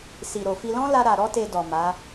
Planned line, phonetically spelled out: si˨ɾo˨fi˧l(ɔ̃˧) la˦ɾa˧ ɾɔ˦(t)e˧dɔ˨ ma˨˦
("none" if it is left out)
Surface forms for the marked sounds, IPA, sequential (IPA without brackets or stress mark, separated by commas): ɔ̃˦, t